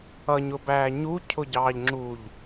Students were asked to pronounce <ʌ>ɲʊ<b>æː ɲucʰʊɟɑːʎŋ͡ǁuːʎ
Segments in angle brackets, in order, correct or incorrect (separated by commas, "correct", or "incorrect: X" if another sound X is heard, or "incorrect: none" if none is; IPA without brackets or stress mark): correct, correct